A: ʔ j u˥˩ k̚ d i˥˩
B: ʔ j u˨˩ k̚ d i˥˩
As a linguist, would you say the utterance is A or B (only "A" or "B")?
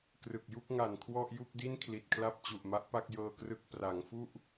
A